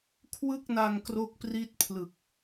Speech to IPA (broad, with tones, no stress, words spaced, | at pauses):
kʰwɯ˥˩k̚na˧ŋ kro˥˩k̚pri˥˩t̚pʰlɯ˨˩k̚